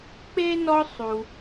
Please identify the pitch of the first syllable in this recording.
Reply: high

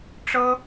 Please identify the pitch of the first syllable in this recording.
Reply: high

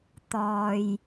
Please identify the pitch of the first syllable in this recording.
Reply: low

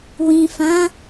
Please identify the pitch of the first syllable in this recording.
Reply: low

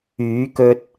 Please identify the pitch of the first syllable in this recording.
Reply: rising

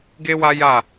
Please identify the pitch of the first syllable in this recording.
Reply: high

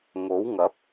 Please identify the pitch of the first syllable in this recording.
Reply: rising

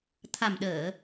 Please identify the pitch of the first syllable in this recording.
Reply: low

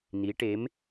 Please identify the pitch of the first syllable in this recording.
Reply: rising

